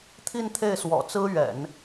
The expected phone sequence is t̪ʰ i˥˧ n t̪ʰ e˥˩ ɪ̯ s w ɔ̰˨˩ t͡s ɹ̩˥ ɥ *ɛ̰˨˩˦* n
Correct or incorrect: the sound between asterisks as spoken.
correct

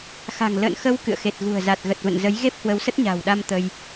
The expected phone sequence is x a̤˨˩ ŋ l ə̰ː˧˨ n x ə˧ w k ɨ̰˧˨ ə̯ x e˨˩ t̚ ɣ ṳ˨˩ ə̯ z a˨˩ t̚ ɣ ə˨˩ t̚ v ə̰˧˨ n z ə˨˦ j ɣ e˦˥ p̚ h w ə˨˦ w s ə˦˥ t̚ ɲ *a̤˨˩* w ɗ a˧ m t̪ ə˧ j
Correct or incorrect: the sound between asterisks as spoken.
correct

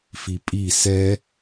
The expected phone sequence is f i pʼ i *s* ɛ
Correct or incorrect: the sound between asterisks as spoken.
correct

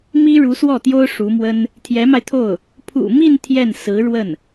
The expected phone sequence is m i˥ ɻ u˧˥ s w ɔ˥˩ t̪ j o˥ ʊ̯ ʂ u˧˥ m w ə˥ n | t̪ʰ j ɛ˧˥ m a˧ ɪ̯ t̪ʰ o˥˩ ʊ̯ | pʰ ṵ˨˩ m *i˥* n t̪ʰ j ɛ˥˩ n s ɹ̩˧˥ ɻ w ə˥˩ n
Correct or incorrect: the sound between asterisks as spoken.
incorrect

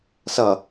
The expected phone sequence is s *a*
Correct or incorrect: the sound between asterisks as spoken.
incorrect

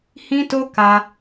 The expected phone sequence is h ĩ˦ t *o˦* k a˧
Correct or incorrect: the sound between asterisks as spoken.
correct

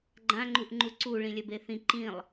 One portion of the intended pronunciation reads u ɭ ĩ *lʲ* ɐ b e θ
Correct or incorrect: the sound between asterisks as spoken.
correct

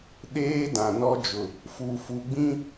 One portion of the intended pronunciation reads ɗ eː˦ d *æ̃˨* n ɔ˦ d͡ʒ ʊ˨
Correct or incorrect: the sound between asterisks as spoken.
incorrect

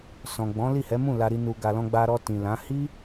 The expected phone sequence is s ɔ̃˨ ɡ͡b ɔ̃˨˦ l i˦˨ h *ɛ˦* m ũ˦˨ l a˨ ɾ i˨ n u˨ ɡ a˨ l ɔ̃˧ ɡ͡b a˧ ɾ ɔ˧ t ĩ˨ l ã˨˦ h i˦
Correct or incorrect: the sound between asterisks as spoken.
incorrect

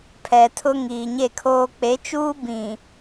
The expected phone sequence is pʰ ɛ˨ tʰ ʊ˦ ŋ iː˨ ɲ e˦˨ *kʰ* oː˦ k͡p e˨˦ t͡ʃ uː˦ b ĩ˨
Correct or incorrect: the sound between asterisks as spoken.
correct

